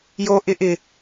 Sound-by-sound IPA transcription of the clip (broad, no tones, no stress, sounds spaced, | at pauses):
j o ʔ ɪ ʔ ɪ